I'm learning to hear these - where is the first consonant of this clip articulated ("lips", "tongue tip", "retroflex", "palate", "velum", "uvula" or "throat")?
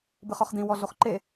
lips